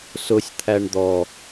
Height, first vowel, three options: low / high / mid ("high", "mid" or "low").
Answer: high